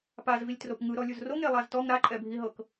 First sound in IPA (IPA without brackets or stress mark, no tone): p